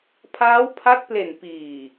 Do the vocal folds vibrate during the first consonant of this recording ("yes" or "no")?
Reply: no